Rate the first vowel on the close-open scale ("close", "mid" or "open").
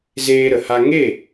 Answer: mid